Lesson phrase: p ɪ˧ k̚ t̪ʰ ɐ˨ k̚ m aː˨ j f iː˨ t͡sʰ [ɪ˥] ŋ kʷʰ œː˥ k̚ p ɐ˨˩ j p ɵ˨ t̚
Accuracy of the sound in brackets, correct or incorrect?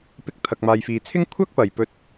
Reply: correct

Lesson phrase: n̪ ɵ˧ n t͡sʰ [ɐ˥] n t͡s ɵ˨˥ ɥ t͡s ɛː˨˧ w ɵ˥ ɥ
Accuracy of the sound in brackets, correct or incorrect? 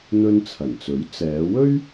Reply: incorrect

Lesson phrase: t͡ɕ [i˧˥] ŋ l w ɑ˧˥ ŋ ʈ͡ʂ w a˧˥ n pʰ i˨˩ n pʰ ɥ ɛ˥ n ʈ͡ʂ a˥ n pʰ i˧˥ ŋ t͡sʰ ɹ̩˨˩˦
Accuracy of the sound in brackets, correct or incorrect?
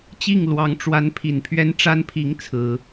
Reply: incorrect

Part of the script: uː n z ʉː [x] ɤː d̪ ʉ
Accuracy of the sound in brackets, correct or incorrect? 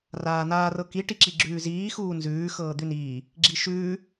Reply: correct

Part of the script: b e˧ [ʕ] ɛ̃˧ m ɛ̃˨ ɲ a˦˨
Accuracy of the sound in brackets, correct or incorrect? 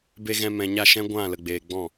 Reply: incorrect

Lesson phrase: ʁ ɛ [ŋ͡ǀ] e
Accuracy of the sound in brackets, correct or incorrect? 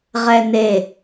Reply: incorrect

